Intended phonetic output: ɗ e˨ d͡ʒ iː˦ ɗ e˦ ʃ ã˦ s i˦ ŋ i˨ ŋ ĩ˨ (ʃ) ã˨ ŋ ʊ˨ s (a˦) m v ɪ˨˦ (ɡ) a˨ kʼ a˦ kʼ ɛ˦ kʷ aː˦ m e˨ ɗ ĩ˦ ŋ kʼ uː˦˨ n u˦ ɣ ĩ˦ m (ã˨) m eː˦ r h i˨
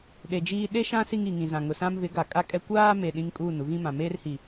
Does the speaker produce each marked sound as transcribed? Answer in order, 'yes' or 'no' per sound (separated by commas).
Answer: no, no, yes, yes